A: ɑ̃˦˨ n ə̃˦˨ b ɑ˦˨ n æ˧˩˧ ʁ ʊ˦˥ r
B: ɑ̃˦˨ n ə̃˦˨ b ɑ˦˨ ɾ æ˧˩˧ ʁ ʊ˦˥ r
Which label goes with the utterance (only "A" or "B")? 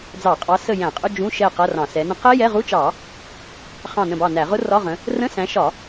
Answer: A